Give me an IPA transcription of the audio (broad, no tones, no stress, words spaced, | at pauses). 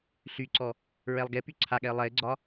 ɬyǀɔ | ɹɛlˠɡepy ǀʰaɠɛə̯ lˠɛɪ̯ɡ͡ǀɒ